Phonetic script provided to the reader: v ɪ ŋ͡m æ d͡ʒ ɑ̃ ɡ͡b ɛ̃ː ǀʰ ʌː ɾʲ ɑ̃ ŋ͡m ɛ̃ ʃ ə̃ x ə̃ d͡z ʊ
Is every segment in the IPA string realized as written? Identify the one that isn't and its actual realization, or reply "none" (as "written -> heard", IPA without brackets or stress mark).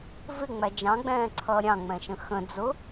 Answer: none